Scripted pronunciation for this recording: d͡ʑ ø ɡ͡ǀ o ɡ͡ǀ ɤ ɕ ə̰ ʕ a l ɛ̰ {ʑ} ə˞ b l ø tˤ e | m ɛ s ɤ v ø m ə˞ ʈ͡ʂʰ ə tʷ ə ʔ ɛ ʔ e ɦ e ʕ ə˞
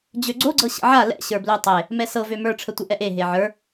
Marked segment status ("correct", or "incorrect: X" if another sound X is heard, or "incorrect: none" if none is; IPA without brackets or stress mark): incorrect: ɕ